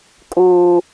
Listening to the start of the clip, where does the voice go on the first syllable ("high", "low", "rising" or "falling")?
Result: high